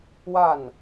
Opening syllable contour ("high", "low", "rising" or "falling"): falling